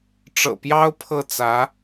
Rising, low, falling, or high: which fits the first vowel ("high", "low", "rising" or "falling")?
low